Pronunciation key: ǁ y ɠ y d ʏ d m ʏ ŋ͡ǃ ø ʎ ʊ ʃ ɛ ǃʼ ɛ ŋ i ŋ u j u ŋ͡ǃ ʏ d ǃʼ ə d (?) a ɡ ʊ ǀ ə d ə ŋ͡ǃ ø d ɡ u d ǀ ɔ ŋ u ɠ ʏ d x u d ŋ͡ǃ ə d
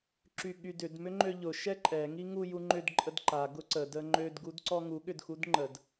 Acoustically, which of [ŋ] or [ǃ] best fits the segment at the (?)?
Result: ǃ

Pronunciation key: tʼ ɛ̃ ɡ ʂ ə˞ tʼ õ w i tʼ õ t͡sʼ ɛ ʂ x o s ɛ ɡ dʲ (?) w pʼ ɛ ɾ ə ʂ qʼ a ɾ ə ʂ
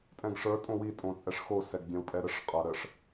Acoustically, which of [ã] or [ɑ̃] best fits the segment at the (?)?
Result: ã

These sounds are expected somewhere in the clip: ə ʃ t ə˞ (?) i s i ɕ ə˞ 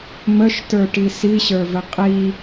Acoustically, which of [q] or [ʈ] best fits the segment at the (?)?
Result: ʈ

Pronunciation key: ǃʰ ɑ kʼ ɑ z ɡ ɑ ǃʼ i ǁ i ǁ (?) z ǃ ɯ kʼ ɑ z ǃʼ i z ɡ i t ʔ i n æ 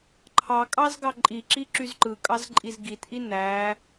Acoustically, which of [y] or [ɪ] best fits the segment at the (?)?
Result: y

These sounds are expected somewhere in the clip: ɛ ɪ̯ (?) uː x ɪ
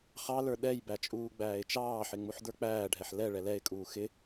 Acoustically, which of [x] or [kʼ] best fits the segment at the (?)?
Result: kʼ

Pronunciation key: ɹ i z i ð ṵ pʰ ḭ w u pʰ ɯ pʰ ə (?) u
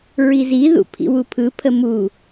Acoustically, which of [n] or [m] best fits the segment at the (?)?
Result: m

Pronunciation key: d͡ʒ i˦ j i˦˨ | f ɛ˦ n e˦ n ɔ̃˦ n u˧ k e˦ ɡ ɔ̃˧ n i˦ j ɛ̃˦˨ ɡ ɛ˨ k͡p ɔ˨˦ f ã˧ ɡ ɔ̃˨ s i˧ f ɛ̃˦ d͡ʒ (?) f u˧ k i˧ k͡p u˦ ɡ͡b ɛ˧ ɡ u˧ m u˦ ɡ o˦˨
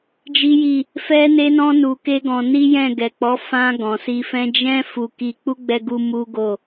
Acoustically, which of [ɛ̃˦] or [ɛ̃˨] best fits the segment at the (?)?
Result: ɛ̃˦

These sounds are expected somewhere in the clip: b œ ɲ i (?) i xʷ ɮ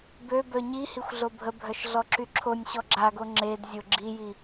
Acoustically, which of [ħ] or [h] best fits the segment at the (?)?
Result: h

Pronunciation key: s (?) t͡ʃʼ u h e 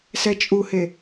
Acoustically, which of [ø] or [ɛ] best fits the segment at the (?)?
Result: ɛ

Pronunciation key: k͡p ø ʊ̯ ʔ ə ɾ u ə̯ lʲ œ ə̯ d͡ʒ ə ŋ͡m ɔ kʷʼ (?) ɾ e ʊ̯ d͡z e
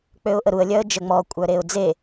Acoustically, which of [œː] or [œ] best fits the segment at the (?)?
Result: œ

